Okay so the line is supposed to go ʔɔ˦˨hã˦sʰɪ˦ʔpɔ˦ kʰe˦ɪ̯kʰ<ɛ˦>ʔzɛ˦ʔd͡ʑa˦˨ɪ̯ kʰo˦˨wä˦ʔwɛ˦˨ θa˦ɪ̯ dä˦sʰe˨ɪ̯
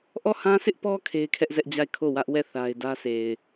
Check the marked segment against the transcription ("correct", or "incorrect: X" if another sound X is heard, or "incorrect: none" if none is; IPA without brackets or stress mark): correct